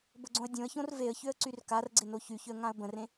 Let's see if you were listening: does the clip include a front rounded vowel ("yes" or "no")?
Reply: yes